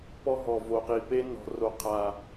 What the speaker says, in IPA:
p ɔ˦ ɦ ɔ˨ v o˨ q i˨ p e˦ n ɔ̤˨ r o˨ qʰ a˨

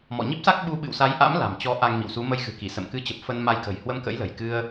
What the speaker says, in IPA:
m ɔ̰˧˨ ɲ i˦˥ p̚ s a˦˥ k̚ ɓ u˧ ɓ ɨ̰˧˨ w s a˨˦ j ʔ a̰˧˥ m l a̤˨˩ m t͡ɕ ɔ˨˦ ʔ a˧ ŋ m ḭ˧˨ w s u˨˦ m ə˧ j ɣ ɨ̤˨˩ k i˧˩ s ə̰˧˨ m k ɨ˧ t͡ɕ ə˨˩ p̚ f ə˧ n m a˧ j k ə̤˨˩ j h w ə˧ m k ə̰˧˥ j l ə̤˨˩ j k ɨ˧ ə̯

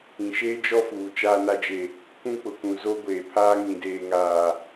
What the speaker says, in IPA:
ĩ˨ ʃ eː˦ d͡ʒ ɔ˦ f uː˨ t͡ʃ aː˨ n a˨ d͡ʒ e˨ | kʷ ũ˦ k͡p ʊ˨ k ũ˨ z o˦ ɡʷ eː˨ pʰ aː˦ ŋ ĩ˨ d eː˨ ŋ aː˨

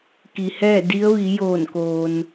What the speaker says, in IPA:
k i˩ h ɛː˥˨ d i˧˥ ə̯ ʋ i˩˧ j oː˧˩ n k oː˩ n

